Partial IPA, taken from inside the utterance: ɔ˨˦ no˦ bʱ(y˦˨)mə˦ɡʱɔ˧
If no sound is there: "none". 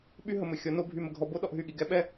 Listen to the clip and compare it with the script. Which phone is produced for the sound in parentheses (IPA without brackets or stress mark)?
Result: y˦˨